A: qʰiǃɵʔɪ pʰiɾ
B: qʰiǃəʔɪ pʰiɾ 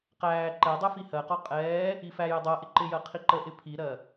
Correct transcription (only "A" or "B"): B